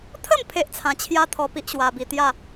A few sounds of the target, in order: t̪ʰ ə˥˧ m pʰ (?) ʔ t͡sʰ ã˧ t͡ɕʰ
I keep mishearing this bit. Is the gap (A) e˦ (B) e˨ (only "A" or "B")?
A